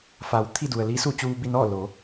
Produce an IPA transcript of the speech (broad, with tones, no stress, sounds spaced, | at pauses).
f a˩˧ w t̪ʰ i˥˨ d u˩ ə̯ l i˧˥ s u˥˨ t͡ɕ uː˧ b i˥˨ n ɔː˥˨ l o˩˧